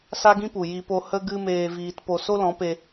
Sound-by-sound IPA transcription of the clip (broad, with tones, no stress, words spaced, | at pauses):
sa˦ɡĩ˦pu˨ ji˧po˧ hə˦ ɡɨ˦meː˧viː˧t po˧ so˦lɔ̃˨˦pe˧